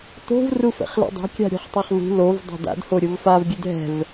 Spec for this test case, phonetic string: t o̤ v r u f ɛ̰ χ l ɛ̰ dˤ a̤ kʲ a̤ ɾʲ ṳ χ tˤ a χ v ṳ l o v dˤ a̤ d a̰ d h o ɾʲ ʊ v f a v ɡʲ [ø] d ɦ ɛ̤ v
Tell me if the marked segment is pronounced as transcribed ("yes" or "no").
yes